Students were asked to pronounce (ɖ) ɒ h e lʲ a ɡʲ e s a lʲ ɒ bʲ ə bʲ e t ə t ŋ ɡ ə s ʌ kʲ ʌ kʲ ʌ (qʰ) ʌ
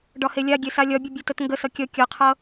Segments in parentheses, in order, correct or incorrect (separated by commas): correct, correct